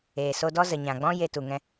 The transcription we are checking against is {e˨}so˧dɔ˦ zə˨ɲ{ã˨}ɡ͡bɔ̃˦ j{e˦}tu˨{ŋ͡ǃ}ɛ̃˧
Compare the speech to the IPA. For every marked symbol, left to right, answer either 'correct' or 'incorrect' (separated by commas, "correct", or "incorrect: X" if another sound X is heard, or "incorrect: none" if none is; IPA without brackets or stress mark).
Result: incorrect: eː˨, correct, incorrect: e˧, incorrect: ŋ